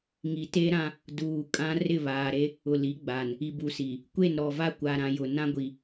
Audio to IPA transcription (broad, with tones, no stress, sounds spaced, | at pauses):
ŋ i˨ t e˦ ɾ ã˦ | d uː˨ kʼ ã˦ r ɪ˦˨ β aː˨ ɾ e˦ | ʊ˨ l i˨˦ ɡ͡b a˨ n | i˨ b u˨ s i˨ | kʷ e˦˨ n ɾ ɔ˨ v a˦ kʷ a˨ ɾ ã˨ j ʊ˨ n ã˦ ɡʷ i˨